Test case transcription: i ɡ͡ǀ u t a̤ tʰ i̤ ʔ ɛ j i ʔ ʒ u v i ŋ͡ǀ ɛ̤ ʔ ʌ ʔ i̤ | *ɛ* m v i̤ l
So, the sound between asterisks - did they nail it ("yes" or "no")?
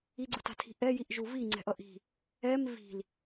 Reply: yes